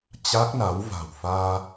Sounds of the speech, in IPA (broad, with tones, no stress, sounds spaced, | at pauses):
t͡ɕ a˦˥ k̚ n a˨˦ w v a̤˨˩ w f aː˧